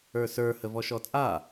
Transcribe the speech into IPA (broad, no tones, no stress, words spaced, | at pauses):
ə˞sə˞ həvɔʃɔt͡sʼa